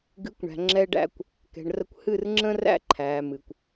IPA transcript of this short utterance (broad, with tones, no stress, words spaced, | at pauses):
ɡɨ˨˦kʷɳæ̤˨ ŋ͡ǁɛ˧ɖæ̰˧kʷ | kɛ̤˨ɳrə˧kʷ hɨ˦˨rŋ͡ǁə̃˦ræ̰˦ ǃʰæː˨mɨ˨kʷ